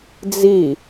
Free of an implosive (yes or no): yes